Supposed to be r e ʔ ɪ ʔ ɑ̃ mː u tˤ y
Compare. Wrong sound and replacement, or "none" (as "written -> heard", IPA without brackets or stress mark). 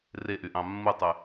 ɪ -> y